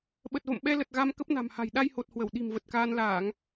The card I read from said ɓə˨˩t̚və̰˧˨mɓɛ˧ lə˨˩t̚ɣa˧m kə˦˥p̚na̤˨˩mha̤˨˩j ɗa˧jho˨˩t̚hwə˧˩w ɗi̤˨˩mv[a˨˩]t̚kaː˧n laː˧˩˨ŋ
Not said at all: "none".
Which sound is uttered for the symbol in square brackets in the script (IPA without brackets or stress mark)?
ə˨˩